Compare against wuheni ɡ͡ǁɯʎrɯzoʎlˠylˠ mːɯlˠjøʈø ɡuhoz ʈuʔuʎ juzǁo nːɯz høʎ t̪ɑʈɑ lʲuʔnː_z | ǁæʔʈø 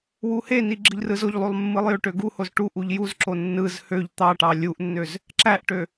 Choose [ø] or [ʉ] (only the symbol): ø